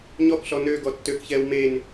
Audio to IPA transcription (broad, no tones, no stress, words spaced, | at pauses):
ɲɔkɬɔ nøɡɔ tːøkçɛːw men